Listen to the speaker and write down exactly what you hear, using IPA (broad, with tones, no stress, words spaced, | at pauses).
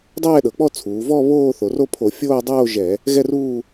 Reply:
dˤɛː˥˧ɗɤ˩˧k͡pɔ˥˧t͡sʰuː˩˧ vɔ˥˧ βoː˥˧θo˩˧ro˥˧pʰo˧˩˧ fʲoː˥˧dˤoː˥˧ʒɛ˧˩˧ | ɣɛ˥˧ruː˥˧